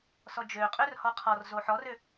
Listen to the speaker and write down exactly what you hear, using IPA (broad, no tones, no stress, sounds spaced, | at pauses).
s ɔ d͡ʒ ø qʼ ø r h ɔ qʰ ɔ r z o ħ ɔ r ø